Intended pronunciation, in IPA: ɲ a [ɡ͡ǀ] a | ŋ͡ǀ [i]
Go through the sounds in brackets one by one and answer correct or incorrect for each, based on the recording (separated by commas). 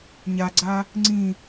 correct, incorrect